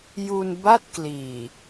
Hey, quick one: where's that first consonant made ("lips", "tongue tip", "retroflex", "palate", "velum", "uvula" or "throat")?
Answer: palate